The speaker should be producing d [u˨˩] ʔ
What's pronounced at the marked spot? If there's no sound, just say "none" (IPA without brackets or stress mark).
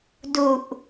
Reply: u˨˩